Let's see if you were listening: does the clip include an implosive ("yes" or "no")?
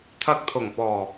no